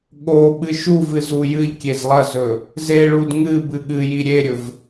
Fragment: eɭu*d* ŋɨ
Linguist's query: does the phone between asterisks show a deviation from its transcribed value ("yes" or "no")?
no